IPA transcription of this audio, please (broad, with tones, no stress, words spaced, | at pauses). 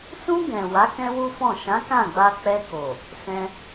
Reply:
sũ˧ɡɛ̃˨ wa˨˦kɛ̃˦wu˦fɔ̃˦˨ ʃã˨˦kã˦˨ɡ͡ba˧ k͡pɛ˧ko˨ | sɛ̃˧